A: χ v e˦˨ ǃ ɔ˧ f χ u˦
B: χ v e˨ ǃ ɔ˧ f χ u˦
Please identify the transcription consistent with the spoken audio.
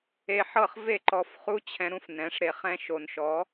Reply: A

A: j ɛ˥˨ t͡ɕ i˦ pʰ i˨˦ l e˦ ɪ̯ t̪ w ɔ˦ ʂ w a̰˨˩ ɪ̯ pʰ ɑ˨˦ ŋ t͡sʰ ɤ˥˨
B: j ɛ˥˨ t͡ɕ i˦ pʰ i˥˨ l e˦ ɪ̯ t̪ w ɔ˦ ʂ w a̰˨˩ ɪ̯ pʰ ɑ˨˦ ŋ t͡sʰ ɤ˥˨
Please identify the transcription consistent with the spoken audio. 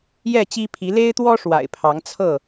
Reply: A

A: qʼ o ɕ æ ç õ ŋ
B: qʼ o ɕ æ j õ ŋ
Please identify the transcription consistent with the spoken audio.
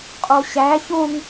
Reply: A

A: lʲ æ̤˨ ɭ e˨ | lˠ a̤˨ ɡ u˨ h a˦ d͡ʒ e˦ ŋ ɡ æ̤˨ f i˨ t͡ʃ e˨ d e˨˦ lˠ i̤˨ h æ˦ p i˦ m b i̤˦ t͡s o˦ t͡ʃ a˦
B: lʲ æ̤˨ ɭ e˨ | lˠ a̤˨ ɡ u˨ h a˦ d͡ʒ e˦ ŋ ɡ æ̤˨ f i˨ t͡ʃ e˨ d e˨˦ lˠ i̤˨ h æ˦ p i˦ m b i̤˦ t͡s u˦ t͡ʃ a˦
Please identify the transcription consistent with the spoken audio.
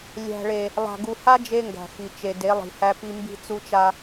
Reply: B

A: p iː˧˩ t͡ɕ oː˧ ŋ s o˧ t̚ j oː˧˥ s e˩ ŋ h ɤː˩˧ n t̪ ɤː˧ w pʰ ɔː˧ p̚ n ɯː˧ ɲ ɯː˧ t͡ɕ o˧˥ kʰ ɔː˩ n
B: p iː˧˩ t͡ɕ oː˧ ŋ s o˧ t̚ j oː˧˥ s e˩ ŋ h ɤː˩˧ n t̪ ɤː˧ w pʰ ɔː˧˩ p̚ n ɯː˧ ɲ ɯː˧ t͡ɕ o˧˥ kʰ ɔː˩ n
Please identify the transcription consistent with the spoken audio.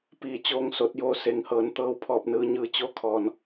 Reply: B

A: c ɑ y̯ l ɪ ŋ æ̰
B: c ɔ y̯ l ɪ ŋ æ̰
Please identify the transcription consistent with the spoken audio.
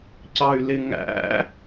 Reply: A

